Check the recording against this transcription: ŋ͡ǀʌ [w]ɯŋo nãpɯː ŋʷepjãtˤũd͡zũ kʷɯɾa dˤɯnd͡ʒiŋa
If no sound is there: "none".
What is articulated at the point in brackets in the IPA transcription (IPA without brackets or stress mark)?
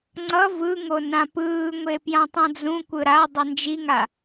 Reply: v